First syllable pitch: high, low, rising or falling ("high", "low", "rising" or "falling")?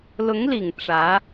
rising